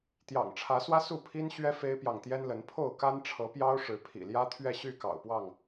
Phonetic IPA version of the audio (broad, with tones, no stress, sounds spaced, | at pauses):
t̪ j ɑ̰˨˩ ŋ ʈ͡ʂʰ ä˨˦ s w ä˦ s u˥˨ pʰ i˦ n ɕ ɥ ɛ˦ f e˦ ɪ̯ p j ɑ˨ ŋ t̪ j ɛ˦ n l ə˨˦ n pʰ o˥˨ ʊ̯ k a˦ n ʈ͡ʂʰ ɤ˨˦ p j ɑ˦ ʊ̯ ʂ ɻ̩˨˦ pʰ ḭ˨˩ l j ä˦ t̪ʰ ɥ ɛ˥˨ ɕ y˥˨ k ɑ̰˨˩ ʊ̯ p w ɑ˥˨ ŋ